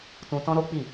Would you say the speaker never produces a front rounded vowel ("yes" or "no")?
yes